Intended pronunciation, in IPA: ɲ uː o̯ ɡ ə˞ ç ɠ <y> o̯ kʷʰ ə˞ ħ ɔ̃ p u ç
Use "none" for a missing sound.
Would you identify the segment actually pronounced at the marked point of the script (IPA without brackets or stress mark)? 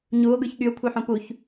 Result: y